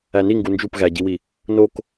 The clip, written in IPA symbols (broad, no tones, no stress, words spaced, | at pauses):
æni ŋɡund͡ʒup ɣæɟiwi | nok